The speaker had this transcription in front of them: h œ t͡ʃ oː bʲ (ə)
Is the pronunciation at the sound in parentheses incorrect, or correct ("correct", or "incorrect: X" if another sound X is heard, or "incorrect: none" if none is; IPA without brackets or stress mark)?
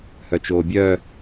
incorrect: œ